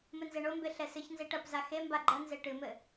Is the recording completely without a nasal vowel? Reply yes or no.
yes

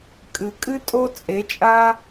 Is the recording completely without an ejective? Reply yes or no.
no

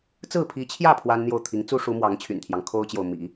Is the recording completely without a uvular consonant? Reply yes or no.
yes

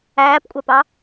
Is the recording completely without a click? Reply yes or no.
yes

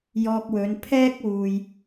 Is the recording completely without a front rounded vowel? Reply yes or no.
yes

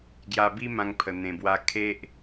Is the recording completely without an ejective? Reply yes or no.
yes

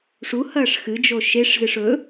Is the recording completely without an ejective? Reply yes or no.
yes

